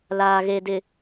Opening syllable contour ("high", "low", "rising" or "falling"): low